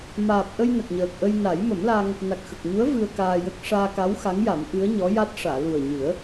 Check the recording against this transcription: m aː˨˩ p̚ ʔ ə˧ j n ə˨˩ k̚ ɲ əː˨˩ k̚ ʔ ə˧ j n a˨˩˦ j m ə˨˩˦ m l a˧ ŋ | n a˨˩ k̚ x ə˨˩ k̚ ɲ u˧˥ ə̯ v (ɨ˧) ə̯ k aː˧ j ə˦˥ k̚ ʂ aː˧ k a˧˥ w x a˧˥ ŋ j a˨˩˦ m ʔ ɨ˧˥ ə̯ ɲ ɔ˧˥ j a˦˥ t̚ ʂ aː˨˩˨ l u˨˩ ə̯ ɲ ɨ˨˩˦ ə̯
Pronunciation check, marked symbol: correct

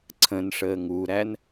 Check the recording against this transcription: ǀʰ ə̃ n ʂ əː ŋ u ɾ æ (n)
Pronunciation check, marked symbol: correct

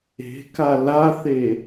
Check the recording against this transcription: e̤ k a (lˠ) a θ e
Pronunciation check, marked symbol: incorrect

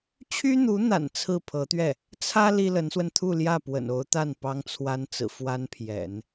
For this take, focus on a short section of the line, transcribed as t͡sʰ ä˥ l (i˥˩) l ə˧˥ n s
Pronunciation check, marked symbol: incorrect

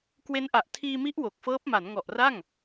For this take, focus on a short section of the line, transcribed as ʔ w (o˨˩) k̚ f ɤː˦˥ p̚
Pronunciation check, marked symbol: correct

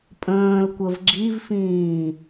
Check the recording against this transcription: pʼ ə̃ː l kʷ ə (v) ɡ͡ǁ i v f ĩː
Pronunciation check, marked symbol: correct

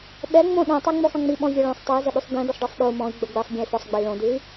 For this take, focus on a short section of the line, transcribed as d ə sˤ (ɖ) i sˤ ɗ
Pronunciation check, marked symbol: correct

